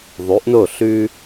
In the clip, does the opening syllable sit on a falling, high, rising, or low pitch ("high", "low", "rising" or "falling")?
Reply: rising